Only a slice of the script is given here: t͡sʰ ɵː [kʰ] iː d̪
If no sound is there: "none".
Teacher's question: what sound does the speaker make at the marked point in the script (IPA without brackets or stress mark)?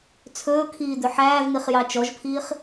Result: kʰ